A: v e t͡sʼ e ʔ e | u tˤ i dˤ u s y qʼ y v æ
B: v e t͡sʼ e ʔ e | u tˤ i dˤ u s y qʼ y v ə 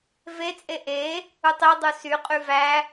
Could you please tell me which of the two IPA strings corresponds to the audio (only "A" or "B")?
A